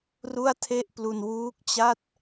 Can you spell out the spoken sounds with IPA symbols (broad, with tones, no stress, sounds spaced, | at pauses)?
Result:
r u˥˩ a̯ tʰ e˥˩ ʔ p l u˧ n w uː˦˥ k̚ t͡ɕ a˥˩ t̚